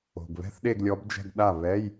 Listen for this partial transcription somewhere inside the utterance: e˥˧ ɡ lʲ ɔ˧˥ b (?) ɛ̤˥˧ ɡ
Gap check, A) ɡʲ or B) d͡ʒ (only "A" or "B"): B